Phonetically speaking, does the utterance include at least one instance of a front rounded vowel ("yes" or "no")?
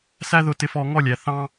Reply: no